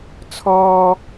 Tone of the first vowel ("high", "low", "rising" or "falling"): high